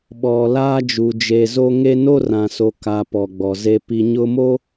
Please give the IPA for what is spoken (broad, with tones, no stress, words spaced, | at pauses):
ɓɔ˨ laː˦d͡ʒu˨ d͡ʒe˨zo˦ŋe˦ no˦ rã˨so˨ka˨ pɔ˨ɡ͡bɔ˨ze˦ pi˨ɲʊ˦mo˦